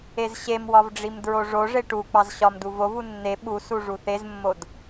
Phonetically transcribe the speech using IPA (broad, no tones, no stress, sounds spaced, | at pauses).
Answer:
e z ɕ e m w ɒ v ɖ͡ʐ i m d ɹ o ʐ o ʐ e ʈ u k͡p ɑ z ɕ ɒ m d u v o v u nː e ɓ u s u ʐ u θ e z mː o d